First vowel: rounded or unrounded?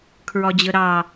rounded